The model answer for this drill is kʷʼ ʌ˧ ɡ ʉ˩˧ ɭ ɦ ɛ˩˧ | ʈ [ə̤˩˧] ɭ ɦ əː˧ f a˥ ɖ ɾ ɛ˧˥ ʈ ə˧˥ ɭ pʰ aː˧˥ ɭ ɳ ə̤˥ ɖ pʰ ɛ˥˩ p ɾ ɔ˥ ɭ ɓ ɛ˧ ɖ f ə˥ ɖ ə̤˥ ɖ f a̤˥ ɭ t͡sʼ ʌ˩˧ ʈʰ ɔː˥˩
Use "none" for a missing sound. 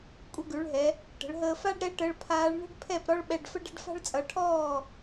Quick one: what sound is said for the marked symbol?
ə̤˩˧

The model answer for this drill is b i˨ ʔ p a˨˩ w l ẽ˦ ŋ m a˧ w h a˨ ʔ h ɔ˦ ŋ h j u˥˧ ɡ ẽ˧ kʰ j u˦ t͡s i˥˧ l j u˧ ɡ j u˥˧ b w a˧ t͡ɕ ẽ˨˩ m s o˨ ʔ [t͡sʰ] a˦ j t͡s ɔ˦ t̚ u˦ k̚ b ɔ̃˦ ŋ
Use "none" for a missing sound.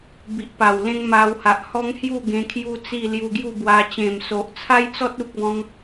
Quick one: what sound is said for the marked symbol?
t͡sʰ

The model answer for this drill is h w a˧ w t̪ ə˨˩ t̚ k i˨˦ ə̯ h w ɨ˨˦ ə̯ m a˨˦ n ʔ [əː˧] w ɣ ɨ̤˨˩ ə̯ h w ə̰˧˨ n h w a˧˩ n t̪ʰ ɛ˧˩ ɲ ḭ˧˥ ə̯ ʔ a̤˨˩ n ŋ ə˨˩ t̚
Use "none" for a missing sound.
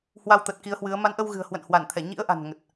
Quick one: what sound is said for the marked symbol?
ə˧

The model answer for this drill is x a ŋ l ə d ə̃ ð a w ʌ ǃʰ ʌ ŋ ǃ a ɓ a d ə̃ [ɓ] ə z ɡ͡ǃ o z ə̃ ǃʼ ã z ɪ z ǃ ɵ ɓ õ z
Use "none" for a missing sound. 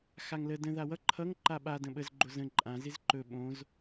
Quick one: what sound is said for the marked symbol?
ɓ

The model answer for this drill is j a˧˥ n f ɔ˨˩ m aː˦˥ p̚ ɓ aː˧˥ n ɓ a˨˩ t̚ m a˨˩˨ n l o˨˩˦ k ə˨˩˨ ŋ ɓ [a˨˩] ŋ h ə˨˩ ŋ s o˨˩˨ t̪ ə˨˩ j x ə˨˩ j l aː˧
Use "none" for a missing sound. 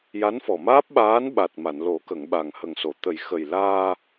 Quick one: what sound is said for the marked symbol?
a˨˩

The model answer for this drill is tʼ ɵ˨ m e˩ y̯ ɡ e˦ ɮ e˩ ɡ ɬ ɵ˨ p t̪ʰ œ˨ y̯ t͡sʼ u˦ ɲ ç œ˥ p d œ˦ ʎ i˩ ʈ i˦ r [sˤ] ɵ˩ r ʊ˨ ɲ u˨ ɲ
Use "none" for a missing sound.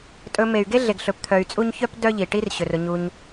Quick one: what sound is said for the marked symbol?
ɕ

